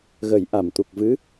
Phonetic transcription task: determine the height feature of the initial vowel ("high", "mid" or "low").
mid